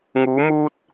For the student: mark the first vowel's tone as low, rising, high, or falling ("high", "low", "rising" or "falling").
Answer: rising